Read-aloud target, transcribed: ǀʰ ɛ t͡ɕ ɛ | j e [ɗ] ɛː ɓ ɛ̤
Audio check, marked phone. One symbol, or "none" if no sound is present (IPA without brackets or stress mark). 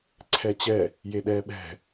ɗ